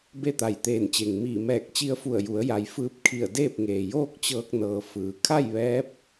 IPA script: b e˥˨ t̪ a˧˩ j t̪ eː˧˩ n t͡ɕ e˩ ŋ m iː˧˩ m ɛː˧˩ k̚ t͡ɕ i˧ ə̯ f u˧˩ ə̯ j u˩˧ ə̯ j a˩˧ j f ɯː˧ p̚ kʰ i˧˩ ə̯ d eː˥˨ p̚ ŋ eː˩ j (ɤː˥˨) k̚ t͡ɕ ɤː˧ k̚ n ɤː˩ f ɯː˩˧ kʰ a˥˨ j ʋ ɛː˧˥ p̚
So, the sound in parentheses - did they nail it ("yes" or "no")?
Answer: no